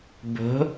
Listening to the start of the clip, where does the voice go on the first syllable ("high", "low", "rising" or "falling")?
rising